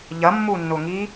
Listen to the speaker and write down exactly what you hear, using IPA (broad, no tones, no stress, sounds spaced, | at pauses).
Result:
ʎ ɐ mː u nː ʊ ŋ i